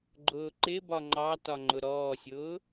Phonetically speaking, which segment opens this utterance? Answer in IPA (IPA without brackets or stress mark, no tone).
ɡ͡ǃ